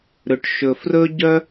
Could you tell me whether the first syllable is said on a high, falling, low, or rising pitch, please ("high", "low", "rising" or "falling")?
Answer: low